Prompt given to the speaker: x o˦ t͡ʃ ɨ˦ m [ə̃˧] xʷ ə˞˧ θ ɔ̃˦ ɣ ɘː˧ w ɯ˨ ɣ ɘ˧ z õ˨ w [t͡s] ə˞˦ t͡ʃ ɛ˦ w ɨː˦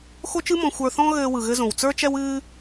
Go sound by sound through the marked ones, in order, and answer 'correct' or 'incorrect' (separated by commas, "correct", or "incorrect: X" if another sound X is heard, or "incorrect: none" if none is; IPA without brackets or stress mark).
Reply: incorrect: ɔ̃˧, correct